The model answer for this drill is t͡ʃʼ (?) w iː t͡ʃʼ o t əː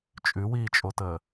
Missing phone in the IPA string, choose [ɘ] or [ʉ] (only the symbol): ʉ